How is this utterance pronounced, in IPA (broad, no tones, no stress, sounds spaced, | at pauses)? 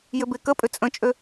j ʏ b e k ə pʼ ʏ t͡sʼ ə̃ t͡ʃʼ ø